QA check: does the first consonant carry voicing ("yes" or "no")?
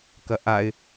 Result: no